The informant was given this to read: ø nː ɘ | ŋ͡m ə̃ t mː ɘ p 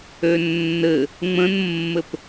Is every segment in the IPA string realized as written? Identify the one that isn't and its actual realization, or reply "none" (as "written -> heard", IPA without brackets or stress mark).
t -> n